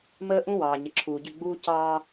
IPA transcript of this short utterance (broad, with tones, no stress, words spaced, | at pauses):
məː˦ ʔũ˦ wɑː˨ɲə˨ǁʰuː˨ɟʏ˦˨ ɡ͡buː˦ cɑː˦